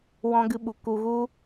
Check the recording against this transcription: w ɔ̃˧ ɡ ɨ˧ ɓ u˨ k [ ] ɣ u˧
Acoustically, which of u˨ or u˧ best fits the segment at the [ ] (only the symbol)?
u˨